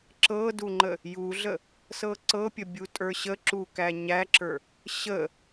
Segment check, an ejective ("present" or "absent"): present